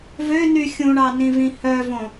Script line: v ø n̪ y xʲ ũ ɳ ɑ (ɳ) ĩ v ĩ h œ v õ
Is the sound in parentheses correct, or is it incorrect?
incorrect